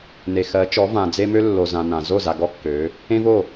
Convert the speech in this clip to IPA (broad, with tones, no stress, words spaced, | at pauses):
ne˨xɜ˨˦t͡ʃɔ˨˦vã˨ d͡ze˦mø˦ lːo˨zã˨ nã˨ zo˦˨za˨ ɡɔ˦kːø˨˦ | ẽ˦vo˦˨